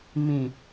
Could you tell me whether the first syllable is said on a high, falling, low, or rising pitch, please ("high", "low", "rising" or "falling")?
low